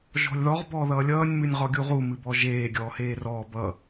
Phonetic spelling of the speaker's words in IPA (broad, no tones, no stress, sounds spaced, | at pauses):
ʒ ɔ̤ lʲ ð ɔ ʁ b ɔː ð ʌː lʲ ʌː nʲ m ɨ nʲ ʁ ɔ ɡʲ u ʁ u m ɨ b ɔ ʒ eː ɡʲ ɔː h eː r ɔː b ʌ